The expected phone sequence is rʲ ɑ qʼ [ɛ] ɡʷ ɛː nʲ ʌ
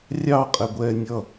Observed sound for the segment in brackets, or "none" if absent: ɛ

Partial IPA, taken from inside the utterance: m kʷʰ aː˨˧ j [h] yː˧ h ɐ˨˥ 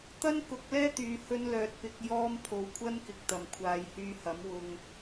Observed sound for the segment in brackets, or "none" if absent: h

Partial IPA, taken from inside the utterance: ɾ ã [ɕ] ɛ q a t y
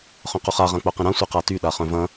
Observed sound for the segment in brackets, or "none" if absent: sʷ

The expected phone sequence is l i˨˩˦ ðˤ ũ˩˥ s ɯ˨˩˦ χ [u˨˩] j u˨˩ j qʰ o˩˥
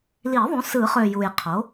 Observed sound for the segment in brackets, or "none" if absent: ø˨˩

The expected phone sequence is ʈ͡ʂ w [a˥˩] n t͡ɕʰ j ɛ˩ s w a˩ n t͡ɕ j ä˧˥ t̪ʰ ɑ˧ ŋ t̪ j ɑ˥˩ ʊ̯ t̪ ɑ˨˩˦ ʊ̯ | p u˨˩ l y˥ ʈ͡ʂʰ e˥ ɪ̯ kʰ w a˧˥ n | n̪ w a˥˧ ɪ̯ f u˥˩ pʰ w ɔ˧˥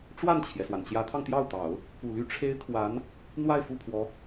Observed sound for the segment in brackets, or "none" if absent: a˥˩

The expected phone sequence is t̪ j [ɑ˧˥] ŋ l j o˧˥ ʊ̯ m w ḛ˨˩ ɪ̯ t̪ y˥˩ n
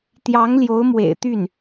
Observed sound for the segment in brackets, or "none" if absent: ɑ˧˥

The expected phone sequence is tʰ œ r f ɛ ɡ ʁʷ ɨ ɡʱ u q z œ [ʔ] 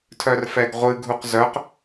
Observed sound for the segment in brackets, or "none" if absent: q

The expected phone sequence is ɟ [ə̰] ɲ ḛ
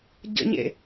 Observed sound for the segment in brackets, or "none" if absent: ə̰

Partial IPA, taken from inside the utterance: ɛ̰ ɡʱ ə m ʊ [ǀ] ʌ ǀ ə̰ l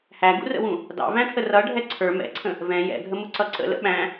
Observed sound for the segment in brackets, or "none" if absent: ǀ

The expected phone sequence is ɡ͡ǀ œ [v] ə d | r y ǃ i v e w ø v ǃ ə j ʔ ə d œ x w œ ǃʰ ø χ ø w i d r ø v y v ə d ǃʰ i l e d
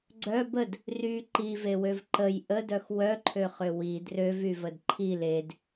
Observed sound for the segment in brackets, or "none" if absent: b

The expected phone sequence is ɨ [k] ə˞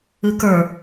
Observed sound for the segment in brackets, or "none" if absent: k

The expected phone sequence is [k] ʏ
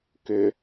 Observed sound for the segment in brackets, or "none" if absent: k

